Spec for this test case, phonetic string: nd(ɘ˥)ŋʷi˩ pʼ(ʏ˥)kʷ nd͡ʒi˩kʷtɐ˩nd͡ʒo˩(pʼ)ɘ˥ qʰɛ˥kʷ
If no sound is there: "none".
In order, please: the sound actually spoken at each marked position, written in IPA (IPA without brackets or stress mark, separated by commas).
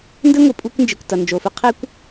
ɘ˥, u˥, f